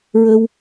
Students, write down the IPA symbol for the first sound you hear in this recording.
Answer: ɹ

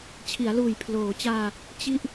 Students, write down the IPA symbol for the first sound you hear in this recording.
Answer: t͡ɕʰ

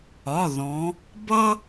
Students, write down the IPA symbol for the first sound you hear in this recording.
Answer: ɒ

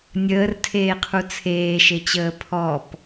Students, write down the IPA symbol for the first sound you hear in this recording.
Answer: nʲ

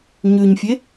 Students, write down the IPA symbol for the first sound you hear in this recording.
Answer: ɲ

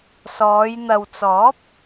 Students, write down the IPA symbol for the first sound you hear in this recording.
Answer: s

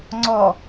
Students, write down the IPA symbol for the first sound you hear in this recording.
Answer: ŋ͡ǀ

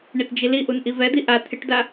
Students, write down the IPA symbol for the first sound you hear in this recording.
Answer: ɳ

